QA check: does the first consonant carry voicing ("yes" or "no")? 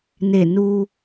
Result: yes